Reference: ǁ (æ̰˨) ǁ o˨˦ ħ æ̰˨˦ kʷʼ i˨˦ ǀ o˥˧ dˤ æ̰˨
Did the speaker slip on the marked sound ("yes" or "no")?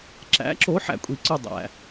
yes